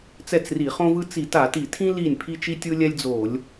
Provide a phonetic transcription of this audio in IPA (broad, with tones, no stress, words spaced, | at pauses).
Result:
t͡sɛ˥˩t͡sri˧˩˧χõ˥vɯ˥ t͡si˧˩˧ta˧˩˧ti˧˩˧tʰĩ˥ li˥˩nʲ pʰi˥t͡ʃi˥tʲɯ˥lʲɛ˥lʲ d͡zo˧˩˧lʲ